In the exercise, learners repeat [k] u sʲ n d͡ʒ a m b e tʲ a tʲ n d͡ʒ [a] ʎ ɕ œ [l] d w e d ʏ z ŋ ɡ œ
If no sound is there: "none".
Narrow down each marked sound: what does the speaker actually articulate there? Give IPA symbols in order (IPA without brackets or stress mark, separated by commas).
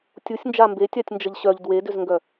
tʲ, ə, ʎ